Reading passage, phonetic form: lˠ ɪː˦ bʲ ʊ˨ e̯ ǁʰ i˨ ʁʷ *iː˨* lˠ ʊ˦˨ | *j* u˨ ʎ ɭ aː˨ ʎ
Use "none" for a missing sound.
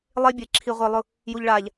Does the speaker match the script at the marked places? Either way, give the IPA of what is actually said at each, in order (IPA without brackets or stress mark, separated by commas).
ɪː˨, j